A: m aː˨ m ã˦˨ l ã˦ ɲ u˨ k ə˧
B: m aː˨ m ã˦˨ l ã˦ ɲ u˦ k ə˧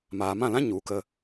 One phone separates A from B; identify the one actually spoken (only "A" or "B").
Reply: A